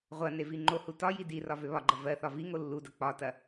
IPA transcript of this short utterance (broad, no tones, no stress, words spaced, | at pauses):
ʁʷɐne viŋ͡ǃohu tɒji dirɒ vøβɒɡ͡ǃɐ vɜθɒ viŋo lːudɐ k͡pɒtɐ